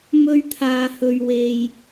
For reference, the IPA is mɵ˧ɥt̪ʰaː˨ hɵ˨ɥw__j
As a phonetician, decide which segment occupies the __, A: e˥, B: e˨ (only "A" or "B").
B